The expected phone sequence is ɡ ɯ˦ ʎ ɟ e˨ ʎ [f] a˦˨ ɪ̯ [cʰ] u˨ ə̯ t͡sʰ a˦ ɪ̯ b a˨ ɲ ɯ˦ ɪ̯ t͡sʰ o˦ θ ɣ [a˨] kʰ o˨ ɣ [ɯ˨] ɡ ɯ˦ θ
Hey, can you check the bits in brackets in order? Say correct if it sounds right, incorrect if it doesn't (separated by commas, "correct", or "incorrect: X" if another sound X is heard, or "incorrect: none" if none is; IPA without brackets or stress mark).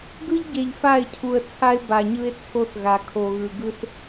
correct, correct, correct, correct